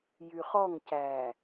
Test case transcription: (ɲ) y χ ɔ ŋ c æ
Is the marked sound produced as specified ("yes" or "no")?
no